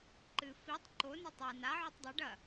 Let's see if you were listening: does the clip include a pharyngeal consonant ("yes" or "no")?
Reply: yes